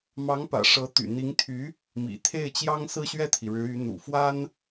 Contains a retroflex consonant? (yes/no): yes